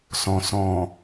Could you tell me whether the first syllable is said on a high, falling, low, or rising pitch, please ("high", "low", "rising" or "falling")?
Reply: low